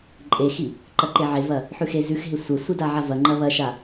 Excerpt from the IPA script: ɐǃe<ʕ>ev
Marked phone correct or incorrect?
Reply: correct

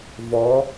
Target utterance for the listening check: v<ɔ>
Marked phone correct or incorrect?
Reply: correct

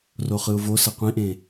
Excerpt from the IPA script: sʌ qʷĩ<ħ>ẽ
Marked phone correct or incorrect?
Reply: incorrect: ʔ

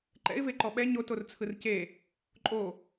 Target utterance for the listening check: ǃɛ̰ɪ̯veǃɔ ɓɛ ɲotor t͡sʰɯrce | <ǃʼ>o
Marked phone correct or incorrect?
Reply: correct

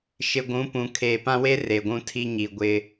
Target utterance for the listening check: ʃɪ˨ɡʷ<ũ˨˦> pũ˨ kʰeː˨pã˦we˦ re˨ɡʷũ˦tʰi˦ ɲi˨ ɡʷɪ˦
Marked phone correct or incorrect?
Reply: correct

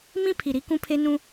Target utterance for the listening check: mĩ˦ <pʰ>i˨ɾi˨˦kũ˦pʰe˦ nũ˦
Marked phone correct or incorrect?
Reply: correct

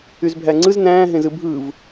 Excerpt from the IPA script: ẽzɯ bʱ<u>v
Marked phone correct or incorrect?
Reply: incorrect: ɯ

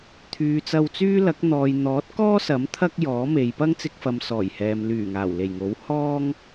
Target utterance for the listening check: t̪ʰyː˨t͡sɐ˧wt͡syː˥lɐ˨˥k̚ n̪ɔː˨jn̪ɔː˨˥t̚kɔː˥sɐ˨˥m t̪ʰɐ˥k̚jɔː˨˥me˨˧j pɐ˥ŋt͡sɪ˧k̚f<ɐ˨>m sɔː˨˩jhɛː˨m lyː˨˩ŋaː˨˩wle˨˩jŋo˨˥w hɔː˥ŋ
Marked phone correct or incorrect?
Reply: correct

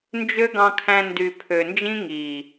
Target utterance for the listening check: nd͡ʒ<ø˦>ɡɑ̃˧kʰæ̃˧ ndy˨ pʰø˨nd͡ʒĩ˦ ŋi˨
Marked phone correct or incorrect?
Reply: correct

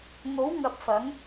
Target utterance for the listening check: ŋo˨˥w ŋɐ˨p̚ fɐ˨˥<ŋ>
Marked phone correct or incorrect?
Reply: correct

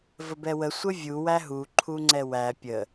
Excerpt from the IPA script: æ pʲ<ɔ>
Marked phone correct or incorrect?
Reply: incorrect: ə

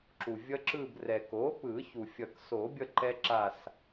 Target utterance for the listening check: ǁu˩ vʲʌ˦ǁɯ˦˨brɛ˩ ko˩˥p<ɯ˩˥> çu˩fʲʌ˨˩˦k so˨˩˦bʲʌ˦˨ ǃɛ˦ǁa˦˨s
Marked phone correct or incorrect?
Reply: incorrect: ɯ˨˩˦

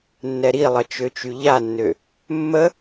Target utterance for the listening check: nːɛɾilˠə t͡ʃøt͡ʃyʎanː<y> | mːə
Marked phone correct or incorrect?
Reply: incorrect: ø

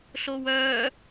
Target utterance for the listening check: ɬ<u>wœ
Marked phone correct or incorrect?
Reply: incorrect: o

